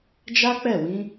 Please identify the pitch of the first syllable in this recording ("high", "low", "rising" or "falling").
high